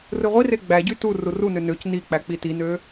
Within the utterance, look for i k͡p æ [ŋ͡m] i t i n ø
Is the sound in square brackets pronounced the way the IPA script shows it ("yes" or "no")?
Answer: no